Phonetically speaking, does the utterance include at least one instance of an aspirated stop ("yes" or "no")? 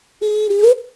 no